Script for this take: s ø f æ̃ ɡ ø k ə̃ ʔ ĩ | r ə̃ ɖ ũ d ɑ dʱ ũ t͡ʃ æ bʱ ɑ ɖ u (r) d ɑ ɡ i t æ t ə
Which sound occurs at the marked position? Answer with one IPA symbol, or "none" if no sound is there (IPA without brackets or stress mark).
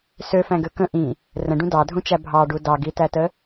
none